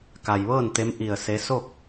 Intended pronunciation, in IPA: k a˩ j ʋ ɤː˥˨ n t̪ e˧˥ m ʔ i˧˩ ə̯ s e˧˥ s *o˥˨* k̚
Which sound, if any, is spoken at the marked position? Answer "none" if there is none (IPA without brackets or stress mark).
o˥˨